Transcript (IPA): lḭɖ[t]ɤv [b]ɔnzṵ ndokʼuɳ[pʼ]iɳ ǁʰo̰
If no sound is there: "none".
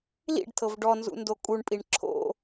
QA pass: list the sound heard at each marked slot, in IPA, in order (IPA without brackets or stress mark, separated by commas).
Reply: tʰ, ɖ, pʼ